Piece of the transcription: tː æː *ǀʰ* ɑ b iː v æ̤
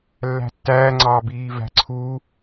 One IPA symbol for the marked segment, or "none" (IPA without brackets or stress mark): ŋ͡ǀ